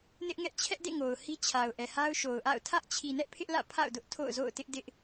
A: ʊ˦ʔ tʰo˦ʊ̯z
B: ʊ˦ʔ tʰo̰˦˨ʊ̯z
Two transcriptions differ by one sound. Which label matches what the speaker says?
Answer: B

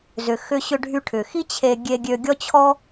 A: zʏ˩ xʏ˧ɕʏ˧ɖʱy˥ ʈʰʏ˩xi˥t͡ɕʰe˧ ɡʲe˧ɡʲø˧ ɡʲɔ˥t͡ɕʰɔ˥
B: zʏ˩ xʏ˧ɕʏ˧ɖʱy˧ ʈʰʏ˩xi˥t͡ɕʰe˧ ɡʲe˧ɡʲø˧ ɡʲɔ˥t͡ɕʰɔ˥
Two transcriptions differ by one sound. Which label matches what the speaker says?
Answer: B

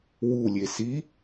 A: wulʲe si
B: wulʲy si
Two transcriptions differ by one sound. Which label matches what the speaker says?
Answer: A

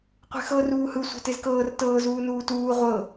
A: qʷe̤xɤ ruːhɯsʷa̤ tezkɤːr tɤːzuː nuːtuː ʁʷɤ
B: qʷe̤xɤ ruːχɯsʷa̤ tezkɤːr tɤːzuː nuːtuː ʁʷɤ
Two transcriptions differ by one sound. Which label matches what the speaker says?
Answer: A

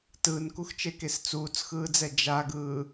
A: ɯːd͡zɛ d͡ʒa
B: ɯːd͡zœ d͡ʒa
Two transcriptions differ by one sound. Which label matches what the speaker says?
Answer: A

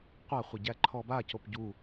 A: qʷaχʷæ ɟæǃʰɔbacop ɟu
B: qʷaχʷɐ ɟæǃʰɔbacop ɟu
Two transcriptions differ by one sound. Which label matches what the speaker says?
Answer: B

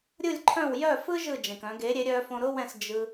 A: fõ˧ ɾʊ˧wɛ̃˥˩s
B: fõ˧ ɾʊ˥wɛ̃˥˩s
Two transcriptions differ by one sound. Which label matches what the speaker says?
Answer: B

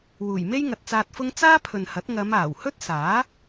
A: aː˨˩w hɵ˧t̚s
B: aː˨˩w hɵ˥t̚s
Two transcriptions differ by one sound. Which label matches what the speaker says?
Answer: B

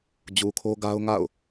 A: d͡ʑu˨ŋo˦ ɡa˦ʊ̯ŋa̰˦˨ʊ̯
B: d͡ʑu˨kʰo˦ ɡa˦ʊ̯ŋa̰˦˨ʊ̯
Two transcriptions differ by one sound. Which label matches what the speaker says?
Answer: B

